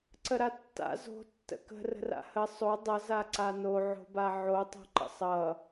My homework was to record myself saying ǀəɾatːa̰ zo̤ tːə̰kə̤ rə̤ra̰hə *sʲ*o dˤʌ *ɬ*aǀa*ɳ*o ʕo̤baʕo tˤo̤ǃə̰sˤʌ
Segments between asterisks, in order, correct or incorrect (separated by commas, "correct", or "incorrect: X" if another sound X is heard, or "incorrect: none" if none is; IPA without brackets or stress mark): incorrect: sˤ, incorrect: z, incorrect: n